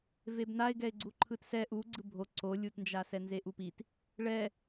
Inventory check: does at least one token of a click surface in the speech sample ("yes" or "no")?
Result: yes